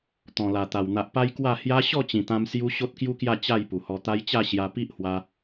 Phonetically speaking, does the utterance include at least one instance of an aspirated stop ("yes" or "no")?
no